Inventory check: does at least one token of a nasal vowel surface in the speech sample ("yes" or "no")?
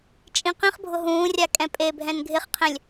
yes